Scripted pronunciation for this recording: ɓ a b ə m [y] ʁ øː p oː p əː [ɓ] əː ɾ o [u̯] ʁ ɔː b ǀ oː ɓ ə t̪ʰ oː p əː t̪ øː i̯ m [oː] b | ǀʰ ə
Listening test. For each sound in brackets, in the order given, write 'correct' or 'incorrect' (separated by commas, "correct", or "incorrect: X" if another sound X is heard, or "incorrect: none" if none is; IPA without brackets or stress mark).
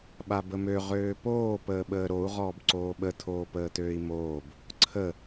incorrect: ø, correct, correct, correct